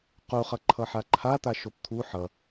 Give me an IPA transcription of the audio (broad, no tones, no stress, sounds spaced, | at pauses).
q u χ ʌ ǃʰ ʌ ħ a ǃʰ a t̪ a ʃ o p t̪ʰ u ħ ʌ